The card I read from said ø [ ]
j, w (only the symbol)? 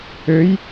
j